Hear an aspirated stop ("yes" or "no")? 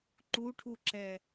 yes